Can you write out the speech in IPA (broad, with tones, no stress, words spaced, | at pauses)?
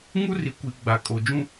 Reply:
ŋu˦ri˨kʷi˨ ɡ͡ba˨kʼo˨ d͡ʒũ˦